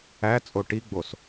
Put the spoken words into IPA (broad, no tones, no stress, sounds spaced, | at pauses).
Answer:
æ t͡sʼ o ʈ i ɡ͡b o s